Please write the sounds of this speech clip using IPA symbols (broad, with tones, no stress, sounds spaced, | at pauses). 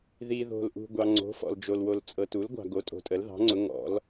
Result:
ð i˨ ð o̤˨ l ʔ ṳ˨ ɡʷ ɑ˨ ŋ͡ǀ o̤˩˥ f ɔ̰˨ l d͡ʒ o˨ l w o˨ l t͡sʼ ɤ˨ t u˩˥ l ɡʷ ɑ̤˨ ɡ o˩˥ tʼ o̤˨ tʼ ə˩˥ l ð ɑ̤˩˥ ŋ͡ǀ ʊ˩˥ ŋ ɔ̰˩˥ l